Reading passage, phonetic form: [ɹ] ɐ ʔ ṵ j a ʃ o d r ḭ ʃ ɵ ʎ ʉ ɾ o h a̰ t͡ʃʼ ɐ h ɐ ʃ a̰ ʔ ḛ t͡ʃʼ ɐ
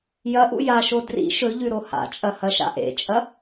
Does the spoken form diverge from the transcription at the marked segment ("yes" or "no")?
yes